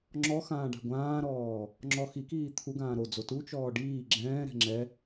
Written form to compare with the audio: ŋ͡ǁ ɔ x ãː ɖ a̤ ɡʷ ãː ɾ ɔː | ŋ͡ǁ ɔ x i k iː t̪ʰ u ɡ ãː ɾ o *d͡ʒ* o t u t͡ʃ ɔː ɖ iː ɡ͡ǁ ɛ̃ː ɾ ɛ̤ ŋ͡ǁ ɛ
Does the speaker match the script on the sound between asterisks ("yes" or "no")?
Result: no